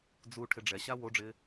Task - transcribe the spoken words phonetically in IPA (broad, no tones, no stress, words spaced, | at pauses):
d͡zu ʈʰɪɖ͡ʐɛɕa woɖ͡ʐɪː